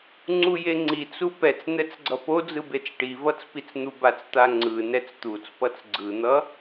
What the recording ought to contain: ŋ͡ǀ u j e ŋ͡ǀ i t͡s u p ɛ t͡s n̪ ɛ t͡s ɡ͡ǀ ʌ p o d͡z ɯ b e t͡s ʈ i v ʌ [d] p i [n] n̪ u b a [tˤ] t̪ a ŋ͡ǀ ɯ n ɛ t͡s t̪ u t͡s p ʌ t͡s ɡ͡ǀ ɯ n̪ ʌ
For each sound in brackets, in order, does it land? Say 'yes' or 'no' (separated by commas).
no, no, no